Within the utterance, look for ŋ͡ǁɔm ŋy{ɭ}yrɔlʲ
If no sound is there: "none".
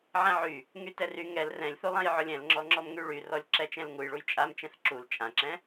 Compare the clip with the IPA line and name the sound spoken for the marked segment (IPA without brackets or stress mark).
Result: ɭ